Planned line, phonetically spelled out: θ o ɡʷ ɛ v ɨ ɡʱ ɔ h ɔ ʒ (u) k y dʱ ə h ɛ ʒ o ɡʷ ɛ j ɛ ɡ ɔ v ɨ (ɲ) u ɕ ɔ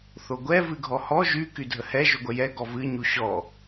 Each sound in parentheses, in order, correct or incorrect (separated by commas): incorrect, correct